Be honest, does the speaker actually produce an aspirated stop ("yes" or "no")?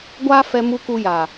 no